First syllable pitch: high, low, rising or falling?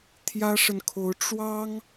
high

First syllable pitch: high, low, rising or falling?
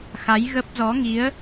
rising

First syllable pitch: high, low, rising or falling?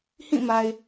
falling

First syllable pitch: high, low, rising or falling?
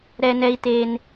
high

